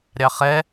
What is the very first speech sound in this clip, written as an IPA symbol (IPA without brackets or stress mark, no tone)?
ɾʲ